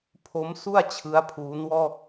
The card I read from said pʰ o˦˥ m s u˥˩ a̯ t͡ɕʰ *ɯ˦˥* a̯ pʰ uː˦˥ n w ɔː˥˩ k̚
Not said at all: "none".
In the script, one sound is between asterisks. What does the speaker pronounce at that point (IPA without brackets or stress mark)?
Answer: ɯ˦˥